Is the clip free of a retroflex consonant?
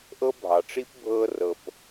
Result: no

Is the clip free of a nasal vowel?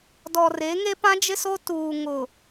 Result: no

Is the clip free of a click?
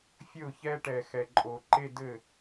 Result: no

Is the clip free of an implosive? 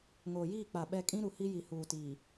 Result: no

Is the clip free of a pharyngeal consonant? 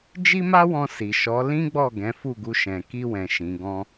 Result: yes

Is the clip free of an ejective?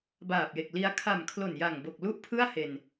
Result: yes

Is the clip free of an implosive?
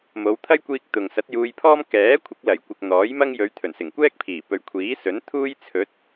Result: yes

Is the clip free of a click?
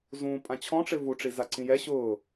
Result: no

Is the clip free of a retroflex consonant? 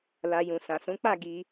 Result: yes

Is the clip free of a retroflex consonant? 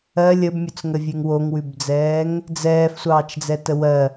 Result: yes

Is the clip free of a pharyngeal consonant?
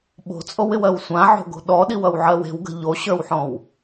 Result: no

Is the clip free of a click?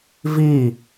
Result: yes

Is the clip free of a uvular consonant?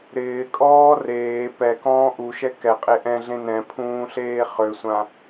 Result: no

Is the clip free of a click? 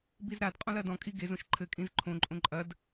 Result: no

